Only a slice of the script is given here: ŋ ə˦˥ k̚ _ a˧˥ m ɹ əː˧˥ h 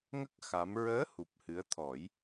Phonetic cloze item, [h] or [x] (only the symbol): x